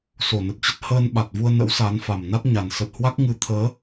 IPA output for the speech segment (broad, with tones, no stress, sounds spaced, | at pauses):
s o˧˩ n ə˨˩ t̚ t͡ɕ ə˦˥ t̚ h əː˧ n ɓ a˨˩ t̚ v u˧ ə̯ n ə̰˧˥ w s a˨˦ n f a˨˩ m n a˦˥ t̚ ɲ a˨˩ n s ə˨˩ t̚ h w a˦˥ k̚ ŋ ɨ˨˦ t̪ʰ əː˨˦